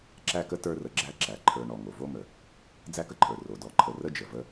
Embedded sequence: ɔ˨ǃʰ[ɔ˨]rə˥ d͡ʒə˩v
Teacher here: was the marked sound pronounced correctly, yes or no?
no